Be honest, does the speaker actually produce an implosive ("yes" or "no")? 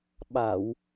yes